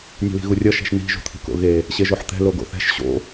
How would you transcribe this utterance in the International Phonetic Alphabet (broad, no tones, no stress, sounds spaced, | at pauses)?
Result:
nʲ ṳ l i̤ ɣ u rʲ ʌ ʃ ɛ̤ ʃ n i̤ ʒ ṳ t̪ʰ i̤ k o̰ ɣ e | ɕ e ʒ o ħ t̪ ɛ̤ l o ɡ o̰ θ ɛ̤ ʃ ɕ o̰